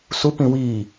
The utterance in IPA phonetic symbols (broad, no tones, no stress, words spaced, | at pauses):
su pĩwiː